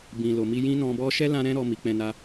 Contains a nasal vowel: yes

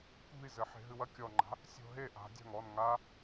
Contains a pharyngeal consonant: yes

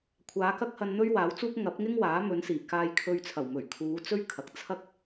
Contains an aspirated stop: yes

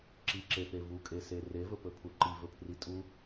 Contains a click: yes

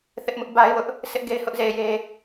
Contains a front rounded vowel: no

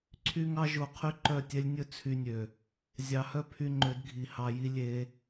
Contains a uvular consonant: yes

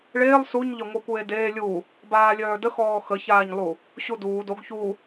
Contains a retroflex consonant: yes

